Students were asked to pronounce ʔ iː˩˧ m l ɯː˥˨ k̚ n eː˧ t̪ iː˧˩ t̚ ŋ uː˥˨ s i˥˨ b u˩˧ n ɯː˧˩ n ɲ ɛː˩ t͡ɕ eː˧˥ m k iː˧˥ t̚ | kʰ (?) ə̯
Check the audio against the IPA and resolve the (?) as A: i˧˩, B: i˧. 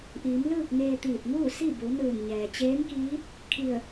A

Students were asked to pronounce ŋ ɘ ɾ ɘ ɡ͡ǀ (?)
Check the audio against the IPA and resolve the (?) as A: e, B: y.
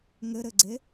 A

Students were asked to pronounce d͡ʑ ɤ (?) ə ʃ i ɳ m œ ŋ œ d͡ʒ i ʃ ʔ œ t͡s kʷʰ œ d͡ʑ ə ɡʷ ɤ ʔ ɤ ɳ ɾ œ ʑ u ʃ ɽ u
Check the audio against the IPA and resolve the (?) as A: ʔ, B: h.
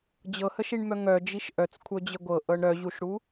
B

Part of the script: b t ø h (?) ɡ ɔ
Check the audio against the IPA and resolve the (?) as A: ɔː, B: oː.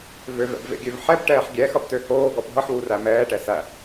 B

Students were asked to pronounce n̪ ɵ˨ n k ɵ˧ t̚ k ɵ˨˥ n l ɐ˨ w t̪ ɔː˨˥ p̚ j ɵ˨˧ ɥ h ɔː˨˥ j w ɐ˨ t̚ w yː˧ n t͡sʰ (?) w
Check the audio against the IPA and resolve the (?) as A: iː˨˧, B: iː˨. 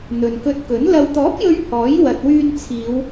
A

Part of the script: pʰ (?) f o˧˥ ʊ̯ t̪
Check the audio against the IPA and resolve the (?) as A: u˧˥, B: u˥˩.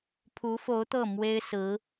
A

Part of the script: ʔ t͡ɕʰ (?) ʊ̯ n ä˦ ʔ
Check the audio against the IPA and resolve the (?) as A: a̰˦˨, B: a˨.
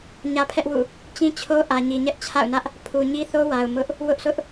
A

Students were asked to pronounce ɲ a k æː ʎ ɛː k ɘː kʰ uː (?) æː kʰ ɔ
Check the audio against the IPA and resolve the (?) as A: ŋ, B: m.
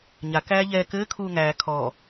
A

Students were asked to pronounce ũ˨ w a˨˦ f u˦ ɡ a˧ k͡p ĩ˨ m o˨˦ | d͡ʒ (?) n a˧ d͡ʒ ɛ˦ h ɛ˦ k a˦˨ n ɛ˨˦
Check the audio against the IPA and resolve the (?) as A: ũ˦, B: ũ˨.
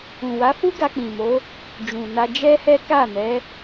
B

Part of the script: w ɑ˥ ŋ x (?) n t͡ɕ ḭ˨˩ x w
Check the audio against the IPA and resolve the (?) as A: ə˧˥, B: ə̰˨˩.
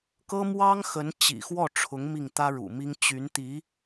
A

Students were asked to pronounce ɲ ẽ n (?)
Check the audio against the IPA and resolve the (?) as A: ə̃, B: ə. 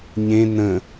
A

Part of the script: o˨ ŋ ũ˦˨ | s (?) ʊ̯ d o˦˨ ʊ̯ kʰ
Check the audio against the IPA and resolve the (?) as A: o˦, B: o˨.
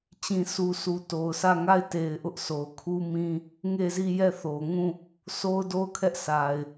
A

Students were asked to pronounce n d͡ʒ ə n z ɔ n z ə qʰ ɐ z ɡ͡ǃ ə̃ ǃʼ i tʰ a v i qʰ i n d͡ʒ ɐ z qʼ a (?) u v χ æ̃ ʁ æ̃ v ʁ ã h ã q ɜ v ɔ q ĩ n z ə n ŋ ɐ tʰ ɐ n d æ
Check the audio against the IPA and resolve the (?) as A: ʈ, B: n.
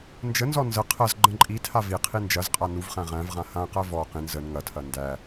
B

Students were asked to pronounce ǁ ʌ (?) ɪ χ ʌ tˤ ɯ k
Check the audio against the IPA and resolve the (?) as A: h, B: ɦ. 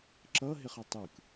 B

